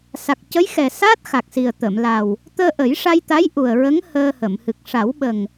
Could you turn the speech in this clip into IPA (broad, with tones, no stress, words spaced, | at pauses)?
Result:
sa˨˩k̚cə˧˥jxɛ˨˩ sa˦˥t̚ xa˨˩k̚si˨˩ə̯ t̪ə˨˩˨mla˨˩w | t̪əː˧ʔə˨˩˦jʂa˧jt̪a˧˥j ʔu˨˩ə̯ɹə˧˥ŋ həː˧hə˨˩˨m hɨ˨˩k̚ʂa˨˩˦wɓə˨˩ŋ